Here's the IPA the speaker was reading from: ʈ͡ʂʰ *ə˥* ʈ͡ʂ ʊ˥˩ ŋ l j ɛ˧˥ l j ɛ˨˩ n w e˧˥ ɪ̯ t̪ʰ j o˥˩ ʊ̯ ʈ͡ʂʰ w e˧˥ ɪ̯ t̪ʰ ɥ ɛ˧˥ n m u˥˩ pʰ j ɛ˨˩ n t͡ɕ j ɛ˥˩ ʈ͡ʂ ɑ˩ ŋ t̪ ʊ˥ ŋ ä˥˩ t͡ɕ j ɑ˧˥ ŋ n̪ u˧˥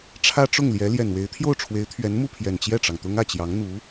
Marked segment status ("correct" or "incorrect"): incorrect